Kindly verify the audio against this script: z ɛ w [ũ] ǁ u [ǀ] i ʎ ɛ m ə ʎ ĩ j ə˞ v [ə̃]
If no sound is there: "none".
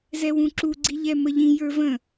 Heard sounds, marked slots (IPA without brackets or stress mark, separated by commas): ũ, ɡ͡ǀ, ə̃